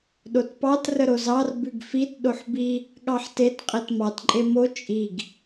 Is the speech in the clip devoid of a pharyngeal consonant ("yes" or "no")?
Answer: no